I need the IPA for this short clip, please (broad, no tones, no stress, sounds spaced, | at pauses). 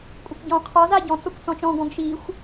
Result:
kʷʼ a kʷ ɟ ɔ̃ qʰ ɔ z a ɟ ɔ̃ t͡s ɔ kʷ t͡s ɔ̃ t͡ʃ ɔ̃ ɡ ɔ̃ ɡ ʃ i xʷ